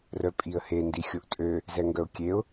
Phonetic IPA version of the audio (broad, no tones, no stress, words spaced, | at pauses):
rœpʼiə̯he ndixʲoʔtʼø | zɛŋɡœʊ̯kʲeʊ̯